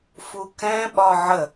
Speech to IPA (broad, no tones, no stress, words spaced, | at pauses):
fukɛ̃ ɓɒʕə